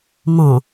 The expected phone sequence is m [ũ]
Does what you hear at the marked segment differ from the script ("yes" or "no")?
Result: yes